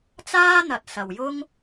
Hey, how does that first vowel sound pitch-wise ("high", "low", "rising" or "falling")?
high